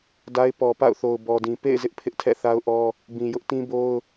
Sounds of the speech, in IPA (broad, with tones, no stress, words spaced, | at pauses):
da˦ɪ̯ pɔ˨ pa̰˦˨ʊ̯θo˨ʊ̯ bɔ˨dĩ˨ pḛ˦˨ɪ̯zɪ˦ʔ pʰɪ˦ʔtʰɛ̰˦˨θa˦ʊ̯ʔɔ˦ | bĩ˨jʊ˦ʔ tĩ˦bo˦ʊ̯